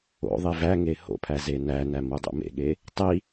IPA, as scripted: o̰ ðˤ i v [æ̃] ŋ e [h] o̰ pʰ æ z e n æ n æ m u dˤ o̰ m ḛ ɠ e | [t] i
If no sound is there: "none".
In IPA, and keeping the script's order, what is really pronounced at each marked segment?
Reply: æ, h, tˤ

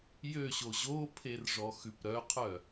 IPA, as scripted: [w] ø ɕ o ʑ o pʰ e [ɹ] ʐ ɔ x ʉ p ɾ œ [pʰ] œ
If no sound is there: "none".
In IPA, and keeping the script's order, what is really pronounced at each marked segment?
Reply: j, r, qʰ

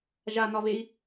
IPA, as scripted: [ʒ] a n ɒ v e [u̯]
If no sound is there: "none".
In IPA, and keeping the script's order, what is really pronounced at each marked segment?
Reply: ʒ, i̯

